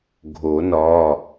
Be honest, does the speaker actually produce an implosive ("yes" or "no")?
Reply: no